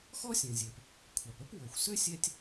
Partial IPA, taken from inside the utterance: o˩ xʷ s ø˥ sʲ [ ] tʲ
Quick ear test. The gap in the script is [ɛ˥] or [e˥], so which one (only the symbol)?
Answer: ɛ˥